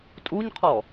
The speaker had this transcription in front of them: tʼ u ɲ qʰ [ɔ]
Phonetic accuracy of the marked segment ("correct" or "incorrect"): correct